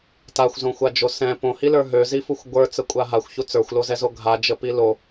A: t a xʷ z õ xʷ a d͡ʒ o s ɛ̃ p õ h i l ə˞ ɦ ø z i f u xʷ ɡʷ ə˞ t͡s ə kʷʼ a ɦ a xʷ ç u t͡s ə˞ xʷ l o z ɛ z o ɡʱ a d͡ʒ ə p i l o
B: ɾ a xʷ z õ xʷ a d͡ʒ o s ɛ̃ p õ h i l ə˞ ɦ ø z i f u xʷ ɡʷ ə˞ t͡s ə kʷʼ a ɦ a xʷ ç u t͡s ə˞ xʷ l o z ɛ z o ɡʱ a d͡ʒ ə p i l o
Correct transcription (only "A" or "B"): A